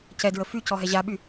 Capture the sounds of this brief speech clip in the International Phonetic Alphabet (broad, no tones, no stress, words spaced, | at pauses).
cɛdɹə fycɔɦɛ ʑaɓy